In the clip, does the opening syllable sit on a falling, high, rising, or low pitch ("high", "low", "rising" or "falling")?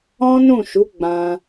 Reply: high